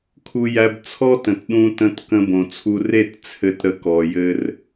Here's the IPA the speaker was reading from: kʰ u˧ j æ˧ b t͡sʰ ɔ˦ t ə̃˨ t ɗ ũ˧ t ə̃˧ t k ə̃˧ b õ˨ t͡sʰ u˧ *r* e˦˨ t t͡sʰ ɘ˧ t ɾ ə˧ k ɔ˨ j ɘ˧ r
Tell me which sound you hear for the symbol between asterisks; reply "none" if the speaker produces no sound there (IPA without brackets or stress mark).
r